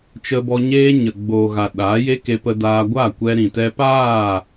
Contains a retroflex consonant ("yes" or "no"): no